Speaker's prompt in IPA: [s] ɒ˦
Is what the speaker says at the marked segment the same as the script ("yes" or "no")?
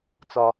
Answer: no